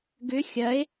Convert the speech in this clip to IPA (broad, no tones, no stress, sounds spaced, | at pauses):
ɡ ʏ xʲ ɐ e̯